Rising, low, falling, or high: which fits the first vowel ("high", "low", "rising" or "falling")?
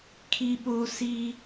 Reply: high